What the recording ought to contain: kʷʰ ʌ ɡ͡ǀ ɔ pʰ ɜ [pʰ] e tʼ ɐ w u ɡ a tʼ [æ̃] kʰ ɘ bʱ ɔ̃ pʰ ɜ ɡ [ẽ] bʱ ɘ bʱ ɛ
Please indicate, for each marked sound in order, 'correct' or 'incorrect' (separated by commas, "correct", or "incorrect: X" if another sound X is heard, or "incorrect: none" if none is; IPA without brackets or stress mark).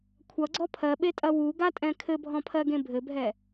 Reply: incorrect: ɓ, incorrect: ɛ̃, correct